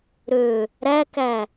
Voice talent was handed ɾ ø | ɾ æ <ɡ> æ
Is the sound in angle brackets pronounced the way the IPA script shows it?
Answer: no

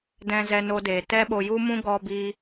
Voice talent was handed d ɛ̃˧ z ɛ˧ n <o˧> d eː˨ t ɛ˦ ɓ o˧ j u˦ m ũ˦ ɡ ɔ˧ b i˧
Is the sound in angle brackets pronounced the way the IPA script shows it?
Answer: yes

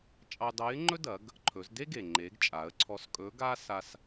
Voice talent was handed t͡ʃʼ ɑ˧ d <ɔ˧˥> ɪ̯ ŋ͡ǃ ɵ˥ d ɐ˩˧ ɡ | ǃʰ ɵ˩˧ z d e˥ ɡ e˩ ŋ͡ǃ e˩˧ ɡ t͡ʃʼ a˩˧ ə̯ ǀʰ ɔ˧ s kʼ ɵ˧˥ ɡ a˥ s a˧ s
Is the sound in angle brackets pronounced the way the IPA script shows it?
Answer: no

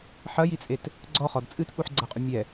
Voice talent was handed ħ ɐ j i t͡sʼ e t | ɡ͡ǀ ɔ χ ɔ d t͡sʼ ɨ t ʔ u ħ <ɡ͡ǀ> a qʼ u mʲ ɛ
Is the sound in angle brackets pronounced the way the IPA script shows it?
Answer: yes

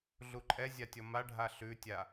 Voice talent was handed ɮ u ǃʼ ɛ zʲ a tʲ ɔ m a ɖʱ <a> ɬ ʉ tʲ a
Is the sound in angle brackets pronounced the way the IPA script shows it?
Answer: yes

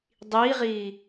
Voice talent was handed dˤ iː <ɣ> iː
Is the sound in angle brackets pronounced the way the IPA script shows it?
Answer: no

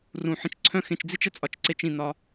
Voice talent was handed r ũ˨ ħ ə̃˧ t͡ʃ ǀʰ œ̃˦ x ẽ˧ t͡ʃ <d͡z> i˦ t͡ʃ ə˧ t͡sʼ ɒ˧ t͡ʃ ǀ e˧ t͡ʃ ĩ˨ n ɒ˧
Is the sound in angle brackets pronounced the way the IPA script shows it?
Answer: yes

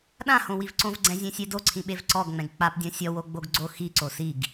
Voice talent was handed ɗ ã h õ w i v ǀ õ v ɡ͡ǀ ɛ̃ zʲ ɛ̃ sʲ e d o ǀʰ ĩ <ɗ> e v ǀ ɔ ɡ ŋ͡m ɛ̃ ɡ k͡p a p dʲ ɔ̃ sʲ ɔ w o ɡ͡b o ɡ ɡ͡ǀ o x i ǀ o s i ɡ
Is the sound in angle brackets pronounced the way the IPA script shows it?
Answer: no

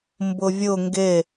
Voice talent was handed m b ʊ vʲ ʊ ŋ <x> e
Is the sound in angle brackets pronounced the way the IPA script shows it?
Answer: no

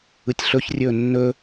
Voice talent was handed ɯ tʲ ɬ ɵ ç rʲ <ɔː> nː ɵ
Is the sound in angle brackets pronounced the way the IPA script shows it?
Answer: no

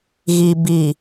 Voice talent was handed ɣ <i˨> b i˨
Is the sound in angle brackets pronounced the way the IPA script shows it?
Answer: yes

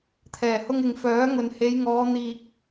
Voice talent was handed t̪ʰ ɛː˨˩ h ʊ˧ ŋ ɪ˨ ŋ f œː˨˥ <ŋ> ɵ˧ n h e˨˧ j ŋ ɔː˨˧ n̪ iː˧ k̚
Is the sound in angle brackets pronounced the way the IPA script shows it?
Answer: yes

